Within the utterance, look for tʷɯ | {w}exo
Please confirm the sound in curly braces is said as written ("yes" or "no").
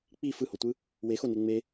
yes